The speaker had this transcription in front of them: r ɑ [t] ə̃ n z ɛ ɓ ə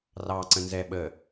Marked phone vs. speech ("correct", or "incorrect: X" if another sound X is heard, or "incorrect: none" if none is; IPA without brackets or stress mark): incorrect: ǀ